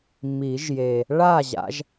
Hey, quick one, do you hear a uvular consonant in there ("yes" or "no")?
no